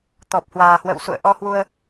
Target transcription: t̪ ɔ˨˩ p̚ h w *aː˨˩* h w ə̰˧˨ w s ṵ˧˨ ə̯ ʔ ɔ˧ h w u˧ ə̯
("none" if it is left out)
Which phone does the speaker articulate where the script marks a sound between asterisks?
aː˨˩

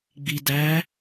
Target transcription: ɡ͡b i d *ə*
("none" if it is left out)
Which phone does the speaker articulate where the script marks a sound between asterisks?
æ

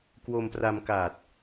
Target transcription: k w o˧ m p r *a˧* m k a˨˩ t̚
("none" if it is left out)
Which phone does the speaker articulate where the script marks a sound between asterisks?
a˧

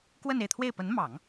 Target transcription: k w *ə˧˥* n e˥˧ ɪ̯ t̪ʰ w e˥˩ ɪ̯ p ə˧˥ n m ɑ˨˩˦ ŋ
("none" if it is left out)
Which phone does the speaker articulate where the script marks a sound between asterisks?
ə˥˧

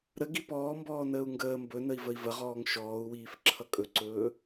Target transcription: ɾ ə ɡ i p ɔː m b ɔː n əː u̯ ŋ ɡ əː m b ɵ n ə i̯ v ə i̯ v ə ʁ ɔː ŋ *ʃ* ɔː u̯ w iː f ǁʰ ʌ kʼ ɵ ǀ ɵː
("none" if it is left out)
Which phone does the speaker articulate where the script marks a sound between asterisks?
ʃ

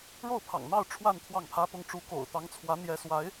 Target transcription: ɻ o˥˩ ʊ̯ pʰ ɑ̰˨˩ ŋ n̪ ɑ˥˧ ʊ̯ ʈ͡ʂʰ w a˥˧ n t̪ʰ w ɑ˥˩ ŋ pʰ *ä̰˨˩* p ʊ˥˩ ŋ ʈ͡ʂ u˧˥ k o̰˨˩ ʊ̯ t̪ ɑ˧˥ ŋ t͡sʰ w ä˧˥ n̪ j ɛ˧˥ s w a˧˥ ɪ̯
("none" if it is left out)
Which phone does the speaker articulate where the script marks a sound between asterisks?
ä˥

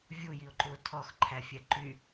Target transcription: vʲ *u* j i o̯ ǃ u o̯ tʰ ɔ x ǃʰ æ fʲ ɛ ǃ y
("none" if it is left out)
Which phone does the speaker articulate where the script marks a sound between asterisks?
u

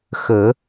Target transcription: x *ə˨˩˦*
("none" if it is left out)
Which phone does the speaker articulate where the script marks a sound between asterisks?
ə˨˩˦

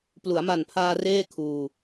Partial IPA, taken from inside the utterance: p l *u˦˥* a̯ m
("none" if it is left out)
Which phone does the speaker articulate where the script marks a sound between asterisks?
u˩˦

